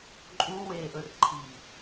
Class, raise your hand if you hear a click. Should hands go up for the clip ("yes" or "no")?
yes